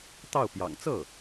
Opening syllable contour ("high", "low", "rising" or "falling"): falling